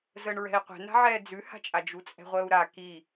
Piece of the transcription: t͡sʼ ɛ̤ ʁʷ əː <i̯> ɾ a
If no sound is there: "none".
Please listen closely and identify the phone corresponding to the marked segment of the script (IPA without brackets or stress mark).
u̯